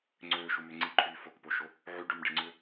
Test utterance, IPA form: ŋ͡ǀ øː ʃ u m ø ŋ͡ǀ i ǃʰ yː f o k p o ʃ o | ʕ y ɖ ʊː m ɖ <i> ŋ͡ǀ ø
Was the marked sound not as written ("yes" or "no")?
yes